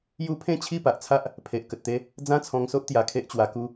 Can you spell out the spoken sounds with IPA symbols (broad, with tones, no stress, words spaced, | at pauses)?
ju˦ pʰẽ˥˧t͡ɕʰi˥˧pa˨ʔt͡sʰa˦ʔ | pʰe˨ʔkə˨t̚t̪e˦ | d͡zã˦t͡sʰɔ̃˧ŋso˦ʔ t̪ja˧kʰe˦ʔt͡ɕwa˧ku˦